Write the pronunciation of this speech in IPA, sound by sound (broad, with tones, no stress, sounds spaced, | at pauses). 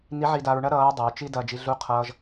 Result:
n i˧˥ ʕ i˧ d a˧ ɹ ɳ ɐ˥ ɾ ʌː˧˥ ɹ dˤ ʌ˩˧ ɹ t͡ʃ i˥ d ɐː˧ d͡ʒ i˧ ɮ u˧˥ qʰ ʌː˧ ʒ